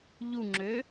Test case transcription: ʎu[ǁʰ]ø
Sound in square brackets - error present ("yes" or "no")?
yes